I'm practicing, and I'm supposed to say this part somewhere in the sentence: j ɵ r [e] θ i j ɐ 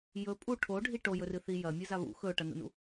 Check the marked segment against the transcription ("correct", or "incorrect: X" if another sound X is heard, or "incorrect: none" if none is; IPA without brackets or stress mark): incorrect: ɨ